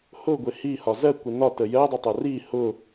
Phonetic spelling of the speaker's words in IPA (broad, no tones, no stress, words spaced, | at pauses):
hʊɡʷɪ hihɒ zɜkʷɪ nɒtə jɜdˤʌtˤɜ ri hʊ